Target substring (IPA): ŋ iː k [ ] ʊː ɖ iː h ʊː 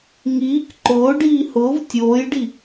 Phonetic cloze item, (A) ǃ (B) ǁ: A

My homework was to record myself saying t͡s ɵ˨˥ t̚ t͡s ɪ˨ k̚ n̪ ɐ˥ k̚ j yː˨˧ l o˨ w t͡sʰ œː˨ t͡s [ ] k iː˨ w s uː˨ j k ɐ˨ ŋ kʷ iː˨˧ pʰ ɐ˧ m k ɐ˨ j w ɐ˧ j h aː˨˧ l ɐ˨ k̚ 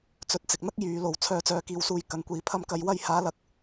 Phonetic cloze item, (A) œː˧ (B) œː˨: B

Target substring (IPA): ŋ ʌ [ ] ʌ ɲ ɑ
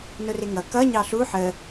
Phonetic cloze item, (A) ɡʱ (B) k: B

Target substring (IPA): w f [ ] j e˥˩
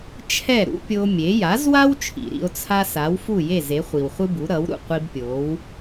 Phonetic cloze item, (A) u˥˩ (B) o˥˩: A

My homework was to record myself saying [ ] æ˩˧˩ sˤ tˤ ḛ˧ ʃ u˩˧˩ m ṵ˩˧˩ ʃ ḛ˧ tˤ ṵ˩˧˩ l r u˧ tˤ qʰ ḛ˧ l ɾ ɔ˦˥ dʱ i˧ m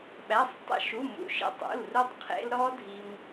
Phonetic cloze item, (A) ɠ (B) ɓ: B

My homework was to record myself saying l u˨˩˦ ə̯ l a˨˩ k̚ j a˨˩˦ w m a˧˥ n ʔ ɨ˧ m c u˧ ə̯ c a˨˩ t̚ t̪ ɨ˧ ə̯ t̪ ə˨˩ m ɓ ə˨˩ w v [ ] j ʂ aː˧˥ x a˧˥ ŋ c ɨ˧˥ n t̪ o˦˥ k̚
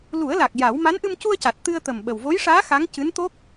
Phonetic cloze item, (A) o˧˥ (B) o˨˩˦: A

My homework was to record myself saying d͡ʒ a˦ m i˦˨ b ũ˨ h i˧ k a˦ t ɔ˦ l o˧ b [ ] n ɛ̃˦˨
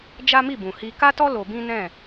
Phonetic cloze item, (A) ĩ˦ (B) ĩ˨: A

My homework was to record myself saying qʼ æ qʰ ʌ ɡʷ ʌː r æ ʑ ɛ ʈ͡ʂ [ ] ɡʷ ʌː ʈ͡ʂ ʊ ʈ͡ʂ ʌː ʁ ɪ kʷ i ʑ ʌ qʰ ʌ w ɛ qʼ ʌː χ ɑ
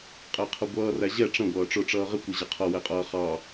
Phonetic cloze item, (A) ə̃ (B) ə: A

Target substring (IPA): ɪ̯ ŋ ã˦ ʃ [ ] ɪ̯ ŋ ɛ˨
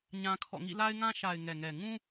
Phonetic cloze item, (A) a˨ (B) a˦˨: A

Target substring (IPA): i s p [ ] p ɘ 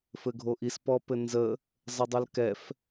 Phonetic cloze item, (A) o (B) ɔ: B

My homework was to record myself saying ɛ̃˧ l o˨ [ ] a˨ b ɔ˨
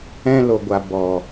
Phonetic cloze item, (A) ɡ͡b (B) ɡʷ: B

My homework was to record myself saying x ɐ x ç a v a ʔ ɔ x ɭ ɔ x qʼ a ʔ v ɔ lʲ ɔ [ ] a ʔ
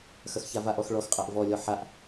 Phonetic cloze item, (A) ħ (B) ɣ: A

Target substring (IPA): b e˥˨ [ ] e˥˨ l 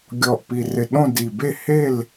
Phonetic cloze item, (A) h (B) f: A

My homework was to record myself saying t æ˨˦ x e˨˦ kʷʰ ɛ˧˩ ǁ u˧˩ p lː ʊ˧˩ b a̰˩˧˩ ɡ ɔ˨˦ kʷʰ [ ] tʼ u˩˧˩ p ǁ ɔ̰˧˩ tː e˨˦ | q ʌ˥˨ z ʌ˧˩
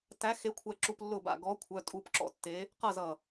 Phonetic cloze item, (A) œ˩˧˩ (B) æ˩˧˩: A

